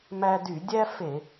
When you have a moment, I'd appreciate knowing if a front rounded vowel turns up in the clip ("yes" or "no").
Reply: yes